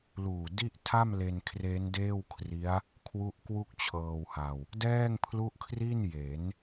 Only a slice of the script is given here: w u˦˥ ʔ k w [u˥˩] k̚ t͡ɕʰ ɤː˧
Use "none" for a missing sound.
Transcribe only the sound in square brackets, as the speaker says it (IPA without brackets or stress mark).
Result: u˥˩